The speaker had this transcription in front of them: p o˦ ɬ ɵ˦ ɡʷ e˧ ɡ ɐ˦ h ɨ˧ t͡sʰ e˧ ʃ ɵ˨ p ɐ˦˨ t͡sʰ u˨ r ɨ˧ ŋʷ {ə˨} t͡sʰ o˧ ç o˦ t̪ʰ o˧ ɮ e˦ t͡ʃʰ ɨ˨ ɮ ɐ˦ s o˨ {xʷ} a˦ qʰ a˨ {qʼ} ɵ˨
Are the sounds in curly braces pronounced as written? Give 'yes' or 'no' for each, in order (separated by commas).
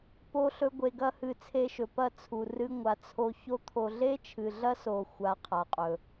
no, yes, yes